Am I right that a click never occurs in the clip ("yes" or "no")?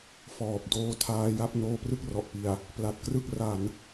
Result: yes